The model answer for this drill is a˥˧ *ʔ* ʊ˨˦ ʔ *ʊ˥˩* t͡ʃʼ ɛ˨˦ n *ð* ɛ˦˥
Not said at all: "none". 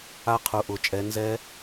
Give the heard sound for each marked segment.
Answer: qʰ, ʊ˨˩, z

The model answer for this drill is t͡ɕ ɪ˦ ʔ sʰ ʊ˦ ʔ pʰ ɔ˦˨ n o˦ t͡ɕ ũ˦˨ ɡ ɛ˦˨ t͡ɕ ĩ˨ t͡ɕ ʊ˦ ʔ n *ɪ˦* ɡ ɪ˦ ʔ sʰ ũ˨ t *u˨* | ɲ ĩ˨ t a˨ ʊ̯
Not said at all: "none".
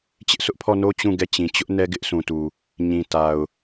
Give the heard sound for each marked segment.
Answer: ɛ˦, u˨

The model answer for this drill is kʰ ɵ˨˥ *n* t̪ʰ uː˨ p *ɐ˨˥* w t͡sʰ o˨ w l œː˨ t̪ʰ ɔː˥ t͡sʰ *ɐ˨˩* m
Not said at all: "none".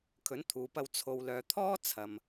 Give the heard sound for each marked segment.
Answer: n, ɐ˧, ɐ˨

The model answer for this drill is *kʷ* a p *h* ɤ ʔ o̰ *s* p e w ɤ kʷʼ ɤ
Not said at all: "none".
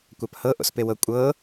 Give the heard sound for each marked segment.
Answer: kʷ, h, s

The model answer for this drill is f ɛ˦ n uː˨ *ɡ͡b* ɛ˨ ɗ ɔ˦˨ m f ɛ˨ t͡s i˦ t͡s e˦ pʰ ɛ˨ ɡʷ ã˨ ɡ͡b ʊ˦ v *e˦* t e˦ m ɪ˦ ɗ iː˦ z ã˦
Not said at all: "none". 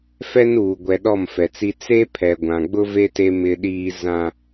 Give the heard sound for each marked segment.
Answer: ɡʷ, e˦

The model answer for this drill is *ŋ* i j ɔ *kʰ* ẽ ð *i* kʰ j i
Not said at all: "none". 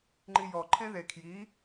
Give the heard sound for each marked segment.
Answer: ŋ͡ǃ, ǃʰ, e

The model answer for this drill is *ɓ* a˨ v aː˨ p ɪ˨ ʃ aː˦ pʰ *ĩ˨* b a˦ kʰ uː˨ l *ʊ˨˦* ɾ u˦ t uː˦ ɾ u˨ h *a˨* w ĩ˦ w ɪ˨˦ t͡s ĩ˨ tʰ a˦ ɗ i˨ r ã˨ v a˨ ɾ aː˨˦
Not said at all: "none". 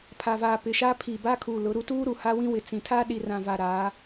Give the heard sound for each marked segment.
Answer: pʰ, i˨, ʊ˨˦, a˦

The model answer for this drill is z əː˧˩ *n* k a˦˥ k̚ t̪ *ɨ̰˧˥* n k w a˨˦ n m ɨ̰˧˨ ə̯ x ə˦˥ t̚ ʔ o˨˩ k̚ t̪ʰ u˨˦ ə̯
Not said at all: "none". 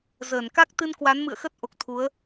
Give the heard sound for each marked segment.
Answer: n, ɨ˧

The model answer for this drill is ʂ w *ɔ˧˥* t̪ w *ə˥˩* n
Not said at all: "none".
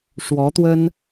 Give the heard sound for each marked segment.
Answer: ɔ˧˥, ə˥

